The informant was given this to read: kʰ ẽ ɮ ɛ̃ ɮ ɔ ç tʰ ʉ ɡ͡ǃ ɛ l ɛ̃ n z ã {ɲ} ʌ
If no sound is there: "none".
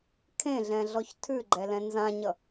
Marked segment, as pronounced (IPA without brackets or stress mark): ɲ